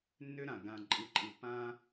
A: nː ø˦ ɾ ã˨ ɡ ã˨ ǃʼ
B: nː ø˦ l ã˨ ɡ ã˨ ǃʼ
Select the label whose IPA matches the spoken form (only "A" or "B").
A